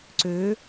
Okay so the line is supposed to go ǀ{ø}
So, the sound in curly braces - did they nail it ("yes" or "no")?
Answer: yes